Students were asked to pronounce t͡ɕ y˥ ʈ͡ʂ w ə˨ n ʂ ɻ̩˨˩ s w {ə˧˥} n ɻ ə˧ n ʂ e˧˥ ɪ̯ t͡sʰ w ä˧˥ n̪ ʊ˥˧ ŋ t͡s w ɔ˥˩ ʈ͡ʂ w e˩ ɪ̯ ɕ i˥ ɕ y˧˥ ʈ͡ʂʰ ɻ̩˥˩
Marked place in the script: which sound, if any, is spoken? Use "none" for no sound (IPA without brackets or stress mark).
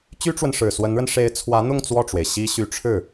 ə˧˥